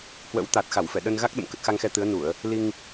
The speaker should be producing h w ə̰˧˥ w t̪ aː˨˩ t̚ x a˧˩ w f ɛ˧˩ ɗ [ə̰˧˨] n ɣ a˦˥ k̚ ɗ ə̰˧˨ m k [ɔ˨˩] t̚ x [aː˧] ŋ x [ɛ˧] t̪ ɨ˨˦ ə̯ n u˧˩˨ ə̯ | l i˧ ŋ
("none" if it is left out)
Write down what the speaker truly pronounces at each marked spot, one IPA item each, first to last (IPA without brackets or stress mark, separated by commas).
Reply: ə˧, ə˨˩, a˧, ɛ˧